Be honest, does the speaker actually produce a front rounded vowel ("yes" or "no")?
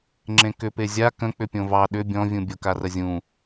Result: yes